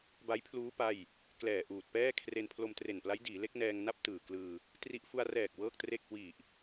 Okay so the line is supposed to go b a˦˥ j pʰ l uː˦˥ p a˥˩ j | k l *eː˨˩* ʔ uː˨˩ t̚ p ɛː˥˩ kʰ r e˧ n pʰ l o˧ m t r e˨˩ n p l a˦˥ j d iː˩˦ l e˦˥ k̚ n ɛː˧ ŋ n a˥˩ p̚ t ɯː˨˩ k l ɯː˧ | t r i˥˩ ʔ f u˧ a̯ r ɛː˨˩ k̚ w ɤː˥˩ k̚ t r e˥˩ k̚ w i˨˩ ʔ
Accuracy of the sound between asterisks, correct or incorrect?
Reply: incorrect